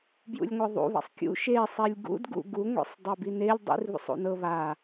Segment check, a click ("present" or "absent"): absent